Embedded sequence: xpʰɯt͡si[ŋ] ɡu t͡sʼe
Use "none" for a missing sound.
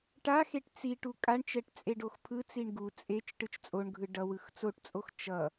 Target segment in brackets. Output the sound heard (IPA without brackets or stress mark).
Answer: ɳ